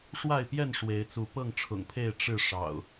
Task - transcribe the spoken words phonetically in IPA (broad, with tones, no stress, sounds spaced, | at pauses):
ʂ w a˥˨ ɪ̯ p j ɛ˥˨ n ʂ w e˨˦ ɪ̯ t͡s u˨˦ p ɤ˥˨ ŋ ʈ͡ʂʰ ʊ̰˨˩ ŋ pʰ e˥˨ ɪ̯ ʈ͡ʂ ɻ̩˥˨ ʂ ɑ̰˨˩ ʊ̯